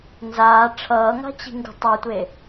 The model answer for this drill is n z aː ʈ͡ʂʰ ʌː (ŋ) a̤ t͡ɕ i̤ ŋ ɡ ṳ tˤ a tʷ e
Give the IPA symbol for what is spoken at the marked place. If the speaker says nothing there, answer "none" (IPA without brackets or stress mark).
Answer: ŋ